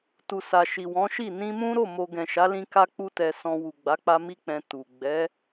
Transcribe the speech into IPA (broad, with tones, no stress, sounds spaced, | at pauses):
t u˨ s a˨ ʃ i˨ w ɔ̃˨˦ ʃ i˦˨ n ĩ˧ m ũ˦ ɾ o˦˨ m o˧ ɡ ɛ̃˨ ʃ a˨˦ l ĩ˦ k a˦ k͡p u˦ t ɛ˧ s ɔ̃˧ w u˨ ɡ͡b a˨˦ k͡p a˧ m i˦ k͡p ɛ̃˧ t u˨ ɡ͡b ɛ˨˦